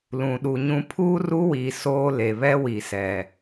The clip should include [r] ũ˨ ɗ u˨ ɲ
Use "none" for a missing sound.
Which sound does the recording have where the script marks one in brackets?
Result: l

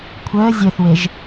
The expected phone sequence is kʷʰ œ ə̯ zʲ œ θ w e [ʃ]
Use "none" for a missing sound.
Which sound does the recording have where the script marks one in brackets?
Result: ʒ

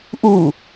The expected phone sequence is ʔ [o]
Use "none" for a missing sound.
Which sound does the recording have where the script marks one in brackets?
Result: u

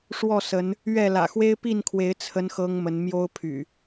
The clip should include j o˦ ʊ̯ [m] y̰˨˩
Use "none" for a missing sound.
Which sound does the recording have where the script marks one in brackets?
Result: pʰ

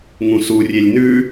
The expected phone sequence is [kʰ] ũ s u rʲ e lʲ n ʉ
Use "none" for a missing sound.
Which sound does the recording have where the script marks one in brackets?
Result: ŋ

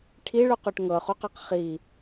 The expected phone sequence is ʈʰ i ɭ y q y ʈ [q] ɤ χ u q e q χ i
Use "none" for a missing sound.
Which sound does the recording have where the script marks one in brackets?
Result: ŋ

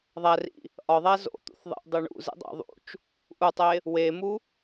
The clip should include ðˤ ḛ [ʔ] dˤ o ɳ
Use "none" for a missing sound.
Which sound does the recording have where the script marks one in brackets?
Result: ʔ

